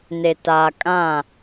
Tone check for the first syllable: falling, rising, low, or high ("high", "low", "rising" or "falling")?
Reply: low